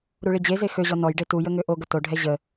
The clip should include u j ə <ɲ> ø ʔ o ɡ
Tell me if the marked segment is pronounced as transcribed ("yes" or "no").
no